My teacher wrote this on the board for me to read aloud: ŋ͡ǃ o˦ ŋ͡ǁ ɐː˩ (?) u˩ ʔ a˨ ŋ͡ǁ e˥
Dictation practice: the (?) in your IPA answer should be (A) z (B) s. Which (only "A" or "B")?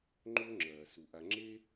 B